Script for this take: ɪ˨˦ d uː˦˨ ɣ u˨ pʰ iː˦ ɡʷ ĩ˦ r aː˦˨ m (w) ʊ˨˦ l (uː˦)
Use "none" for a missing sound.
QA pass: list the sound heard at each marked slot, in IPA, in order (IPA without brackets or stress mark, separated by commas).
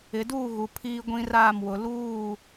w, uː˦˨